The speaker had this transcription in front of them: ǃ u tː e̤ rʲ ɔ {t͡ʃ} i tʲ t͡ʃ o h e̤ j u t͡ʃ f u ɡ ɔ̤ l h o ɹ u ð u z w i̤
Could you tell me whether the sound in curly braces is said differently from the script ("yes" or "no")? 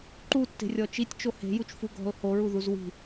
no